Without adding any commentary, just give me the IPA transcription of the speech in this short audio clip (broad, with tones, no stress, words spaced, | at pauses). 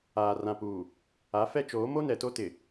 aː˨ rã˨puː˨ | a˨˦fɛ˦t͡ʃoː˨˦ mo˦nɛ˨to˦tɪ˨